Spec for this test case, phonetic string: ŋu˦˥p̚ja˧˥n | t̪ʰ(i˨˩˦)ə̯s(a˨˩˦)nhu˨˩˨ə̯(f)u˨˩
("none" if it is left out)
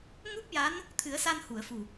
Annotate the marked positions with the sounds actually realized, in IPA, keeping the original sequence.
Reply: ɨ˨˩˦, a˧, f

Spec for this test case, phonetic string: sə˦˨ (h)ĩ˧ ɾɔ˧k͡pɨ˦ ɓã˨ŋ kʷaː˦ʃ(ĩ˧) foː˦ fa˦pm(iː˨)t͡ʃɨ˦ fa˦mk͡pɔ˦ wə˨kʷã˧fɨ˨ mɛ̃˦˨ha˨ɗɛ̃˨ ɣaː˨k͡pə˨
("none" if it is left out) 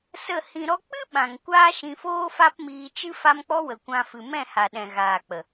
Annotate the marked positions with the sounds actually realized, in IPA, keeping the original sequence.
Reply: h, ĩ˧, iː˧

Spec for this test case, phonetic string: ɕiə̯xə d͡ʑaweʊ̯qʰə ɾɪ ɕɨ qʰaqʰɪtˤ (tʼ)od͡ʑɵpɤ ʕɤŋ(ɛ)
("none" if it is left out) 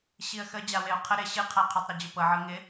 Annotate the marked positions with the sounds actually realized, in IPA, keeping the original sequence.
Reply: ɾ, ɪ

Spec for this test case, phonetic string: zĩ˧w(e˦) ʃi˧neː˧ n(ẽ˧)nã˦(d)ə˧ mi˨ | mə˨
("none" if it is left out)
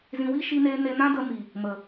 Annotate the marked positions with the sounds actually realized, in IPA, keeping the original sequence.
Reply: i˦, e˧, d

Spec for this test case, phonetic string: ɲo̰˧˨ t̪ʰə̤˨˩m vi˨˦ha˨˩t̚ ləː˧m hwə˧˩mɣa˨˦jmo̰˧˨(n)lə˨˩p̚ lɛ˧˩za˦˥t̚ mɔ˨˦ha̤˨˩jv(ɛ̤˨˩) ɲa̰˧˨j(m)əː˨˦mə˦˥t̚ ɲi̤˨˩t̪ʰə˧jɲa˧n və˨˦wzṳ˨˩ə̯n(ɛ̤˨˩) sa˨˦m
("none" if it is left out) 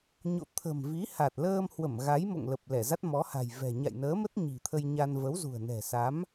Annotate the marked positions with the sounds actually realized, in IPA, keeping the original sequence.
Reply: ŋ, ɛ̤˨˩, n, ɛ̤˨˩

